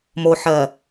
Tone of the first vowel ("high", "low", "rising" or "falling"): low